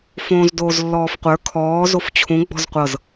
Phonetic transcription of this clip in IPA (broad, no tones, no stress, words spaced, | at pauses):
fõːzdoːzlːɔːfqʷə˞ kʰɔː zoft͡ɕʰũ ɡ͡bɔ̤zqʷɤz